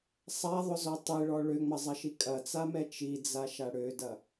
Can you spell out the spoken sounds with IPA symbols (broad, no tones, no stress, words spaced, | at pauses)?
sˤaðˤʊzɔ tˤiɭɔ ɭøŋ͡mɐzˤɐʃi kʼɐt͡samɛ t͡ʃid͡zaʃa ɽødɐ